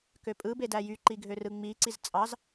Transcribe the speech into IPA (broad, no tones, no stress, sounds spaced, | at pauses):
k ø pʼ ɯ b e d æ j y ǃ i ɡʱ ø r ɯ ŋ͡m i ǀ i z t͡sʼ ɑ z